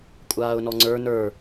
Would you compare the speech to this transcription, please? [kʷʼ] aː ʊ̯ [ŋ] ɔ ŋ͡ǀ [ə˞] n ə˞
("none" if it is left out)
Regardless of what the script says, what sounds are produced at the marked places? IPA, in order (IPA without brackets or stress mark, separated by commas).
kʷʼ, n, ə˞